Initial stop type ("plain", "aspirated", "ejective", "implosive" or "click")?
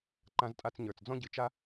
click